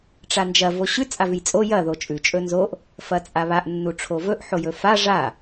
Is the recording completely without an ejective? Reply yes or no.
no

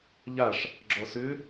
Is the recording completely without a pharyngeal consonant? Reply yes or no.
yes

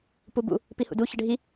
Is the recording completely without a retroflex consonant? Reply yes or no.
no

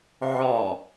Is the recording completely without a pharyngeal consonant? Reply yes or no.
no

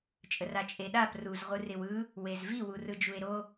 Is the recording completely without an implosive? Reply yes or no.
no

